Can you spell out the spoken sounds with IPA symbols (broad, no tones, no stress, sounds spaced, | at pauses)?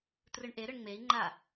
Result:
t r ɯ ɳ ʔ e ɾ ɯ ɳ ŋ͡m e i̯ ŋ͡ǃ a